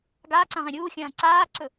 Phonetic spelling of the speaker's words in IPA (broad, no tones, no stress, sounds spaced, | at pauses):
ɡ aː ǀ ɐ̃ ʁ ẽ ɾʲ uː xʲ ɐ̃ː ǀ aː ǀ ɵ